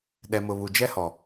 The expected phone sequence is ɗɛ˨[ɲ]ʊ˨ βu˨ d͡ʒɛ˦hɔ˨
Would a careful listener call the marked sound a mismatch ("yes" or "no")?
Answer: yes